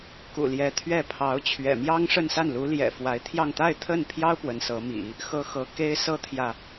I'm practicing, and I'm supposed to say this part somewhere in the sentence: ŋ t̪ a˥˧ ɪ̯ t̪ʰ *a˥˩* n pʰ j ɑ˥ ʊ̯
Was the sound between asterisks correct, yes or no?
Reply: no